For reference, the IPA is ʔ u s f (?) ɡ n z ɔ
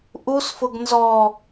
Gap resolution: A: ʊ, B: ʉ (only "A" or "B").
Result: A